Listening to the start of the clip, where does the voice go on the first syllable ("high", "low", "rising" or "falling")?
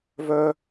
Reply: high